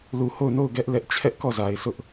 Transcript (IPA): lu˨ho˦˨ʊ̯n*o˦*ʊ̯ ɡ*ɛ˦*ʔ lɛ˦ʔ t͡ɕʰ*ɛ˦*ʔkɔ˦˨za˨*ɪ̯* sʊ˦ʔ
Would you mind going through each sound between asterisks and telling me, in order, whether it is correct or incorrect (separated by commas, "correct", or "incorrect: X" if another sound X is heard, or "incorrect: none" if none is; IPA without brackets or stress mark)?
incorrect: o˦˨, correct, correct, correct